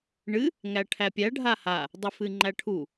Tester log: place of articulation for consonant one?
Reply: retroflex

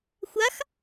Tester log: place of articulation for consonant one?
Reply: velar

